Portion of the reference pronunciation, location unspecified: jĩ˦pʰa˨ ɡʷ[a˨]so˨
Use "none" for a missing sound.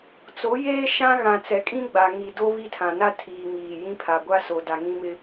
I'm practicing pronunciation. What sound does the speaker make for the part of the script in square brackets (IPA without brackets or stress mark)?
a˦